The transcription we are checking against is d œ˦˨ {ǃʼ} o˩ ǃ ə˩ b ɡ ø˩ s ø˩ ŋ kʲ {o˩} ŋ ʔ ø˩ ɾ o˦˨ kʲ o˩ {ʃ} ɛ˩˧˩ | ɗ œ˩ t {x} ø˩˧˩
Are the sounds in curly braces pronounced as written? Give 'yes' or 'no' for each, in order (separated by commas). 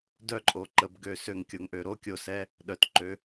yes, yes, no, no